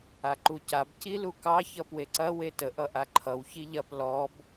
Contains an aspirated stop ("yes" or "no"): yes